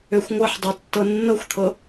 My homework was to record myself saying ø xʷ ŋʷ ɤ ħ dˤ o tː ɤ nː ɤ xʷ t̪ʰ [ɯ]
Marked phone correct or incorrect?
incorrect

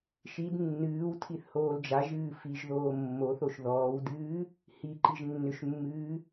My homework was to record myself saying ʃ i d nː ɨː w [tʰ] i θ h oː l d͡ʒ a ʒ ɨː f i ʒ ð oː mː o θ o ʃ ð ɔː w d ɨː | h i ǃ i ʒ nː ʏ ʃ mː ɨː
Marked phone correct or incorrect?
correct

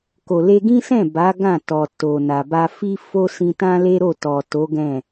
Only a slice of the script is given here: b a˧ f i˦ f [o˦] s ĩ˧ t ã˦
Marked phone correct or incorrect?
correct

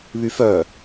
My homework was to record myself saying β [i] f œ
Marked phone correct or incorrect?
incorrect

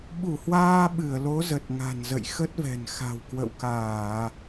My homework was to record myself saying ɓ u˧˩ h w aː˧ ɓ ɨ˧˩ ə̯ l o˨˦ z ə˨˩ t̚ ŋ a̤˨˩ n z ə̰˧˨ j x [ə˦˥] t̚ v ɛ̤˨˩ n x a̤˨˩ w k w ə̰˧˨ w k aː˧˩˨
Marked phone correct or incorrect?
correct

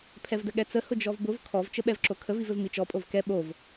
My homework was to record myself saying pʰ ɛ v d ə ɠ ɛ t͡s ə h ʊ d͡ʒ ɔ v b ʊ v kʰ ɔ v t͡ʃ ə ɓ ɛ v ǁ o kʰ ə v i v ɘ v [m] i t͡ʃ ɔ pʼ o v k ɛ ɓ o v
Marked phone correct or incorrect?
correct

